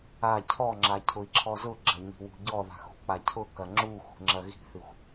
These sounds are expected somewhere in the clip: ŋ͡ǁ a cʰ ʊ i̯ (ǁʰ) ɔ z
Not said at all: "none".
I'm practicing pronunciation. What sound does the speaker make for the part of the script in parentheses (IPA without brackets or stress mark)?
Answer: ǁʰ